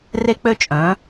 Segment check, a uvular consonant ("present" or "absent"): absent